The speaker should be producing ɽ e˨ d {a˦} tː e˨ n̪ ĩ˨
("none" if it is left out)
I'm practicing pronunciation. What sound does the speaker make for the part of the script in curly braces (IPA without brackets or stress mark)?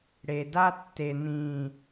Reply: a˦